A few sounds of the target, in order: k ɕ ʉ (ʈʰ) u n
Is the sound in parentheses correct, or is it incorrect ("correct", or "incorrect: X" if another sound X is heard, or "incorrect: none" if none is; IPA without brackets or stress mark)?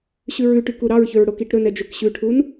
correct